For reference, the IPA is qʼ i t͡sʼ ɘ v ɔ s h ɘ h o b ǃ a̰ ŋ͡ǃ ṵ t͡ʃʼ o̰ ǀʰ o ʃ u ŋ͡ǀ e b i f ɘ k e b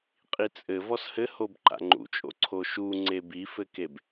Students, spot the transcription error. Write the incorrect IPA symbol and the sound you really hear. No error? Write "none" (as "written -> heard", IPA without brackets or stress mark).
none